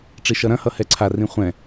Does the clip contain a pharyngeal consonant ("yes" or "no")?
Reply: no